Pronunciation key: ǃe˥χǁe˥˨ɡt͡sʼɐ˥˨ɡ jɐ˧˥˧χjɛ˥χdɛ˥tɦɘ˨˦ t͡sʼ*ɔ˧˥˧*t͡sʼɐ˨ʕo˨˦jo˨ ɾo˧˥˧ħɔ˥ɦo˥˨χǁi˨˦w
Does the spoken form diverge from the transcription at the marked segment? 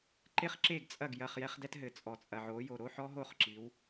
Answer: yes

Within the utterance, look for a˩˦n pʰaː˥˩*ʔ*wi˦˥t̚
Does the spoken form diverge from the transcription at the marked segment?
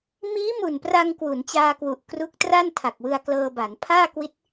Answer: yes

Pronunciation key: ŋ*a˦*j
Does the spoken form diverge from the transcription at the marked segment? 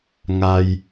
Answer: no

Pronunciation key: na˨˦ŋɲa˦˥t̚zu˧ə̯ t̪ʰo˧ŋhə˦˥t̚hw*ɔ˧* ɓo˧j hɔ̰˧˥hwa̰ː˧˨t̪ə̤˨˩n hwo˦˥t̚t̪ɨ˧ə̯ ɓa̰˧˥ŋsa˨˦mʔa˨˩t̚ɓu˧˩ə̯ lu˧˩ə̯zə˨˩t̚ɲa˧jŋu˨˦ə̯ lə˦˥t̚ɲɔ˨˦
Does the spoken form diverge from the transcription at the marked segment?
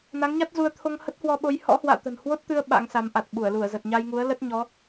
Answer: no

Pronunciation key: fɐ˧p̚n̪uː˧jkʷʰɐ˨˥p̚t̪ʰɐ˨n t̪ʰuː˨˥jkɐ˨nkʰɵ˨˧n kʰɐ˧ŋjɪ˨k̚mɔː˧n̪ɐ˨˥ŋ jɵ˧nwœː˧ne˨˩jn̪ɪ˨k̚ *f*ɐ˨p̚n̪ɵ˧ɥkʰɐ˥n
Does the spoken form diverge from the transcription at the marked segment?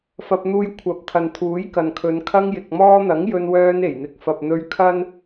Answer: no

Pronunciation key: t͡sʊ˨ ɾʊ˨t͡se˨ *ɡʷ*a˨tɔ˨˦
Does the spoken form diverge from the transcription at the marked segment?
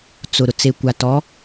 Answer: yes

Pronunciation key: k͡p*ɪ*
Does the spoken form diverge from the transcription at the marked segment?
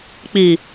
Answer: yes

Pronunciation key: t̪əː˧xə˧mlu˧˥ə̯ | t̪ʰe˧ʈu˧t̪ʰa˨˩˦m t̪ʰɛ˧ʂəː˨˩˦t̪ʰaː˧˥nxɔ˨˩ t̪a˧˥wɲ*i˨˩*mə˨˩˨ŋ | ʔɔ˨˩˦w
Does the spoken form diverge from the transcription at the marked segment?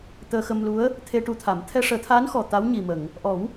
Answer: no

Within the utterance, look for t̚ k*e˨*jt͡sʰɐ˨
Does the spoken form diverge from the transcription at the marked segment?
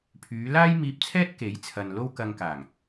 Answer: yes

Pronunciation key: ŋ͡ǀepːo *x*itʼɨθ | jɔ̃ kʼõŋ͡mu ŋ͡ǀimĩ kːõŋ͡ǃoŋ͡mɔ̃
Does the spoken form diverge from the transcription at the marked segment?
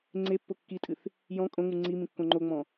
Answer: yes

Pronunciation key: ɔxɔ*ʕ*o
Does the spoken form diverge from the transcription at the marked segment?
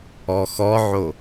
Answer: no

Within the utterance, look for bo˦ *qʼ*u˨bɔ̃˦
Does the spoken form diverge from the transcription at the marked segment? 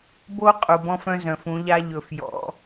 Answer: no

